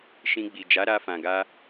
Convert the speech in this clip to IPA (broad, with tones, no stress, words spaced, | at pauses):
ʃĩ˧ɡ͡bi˨ d͡ʒa˨˦ɾa˧fã˨ɡa˧